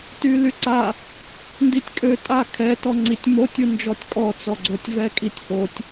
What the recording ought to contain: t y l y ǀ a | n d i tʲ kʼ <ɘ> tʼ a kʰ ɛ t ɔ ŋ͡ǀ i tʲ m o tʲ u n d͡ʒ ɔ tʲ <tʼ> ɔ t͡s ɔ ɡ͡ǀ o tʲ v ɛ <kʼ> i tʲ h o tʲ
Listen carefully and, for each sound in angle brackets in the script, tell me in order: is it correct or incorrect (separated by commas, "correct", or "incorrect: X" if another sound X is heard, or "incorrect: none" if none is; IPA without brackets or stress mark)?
incorrect: ø, incorrect: kʼ, correct